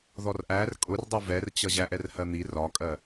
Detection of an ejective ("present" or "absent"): present